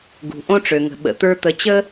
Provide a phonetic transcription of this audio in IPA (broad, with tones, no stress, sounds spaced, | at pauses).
ɡ ṳ˩ ʔ õ˥ ʈ͡ʂ ø˩ ŋ ə̤˩ ɓ ə̰˩ t̪ ə˞˧ t̪ ə˩˥ t͡ɕ ə˥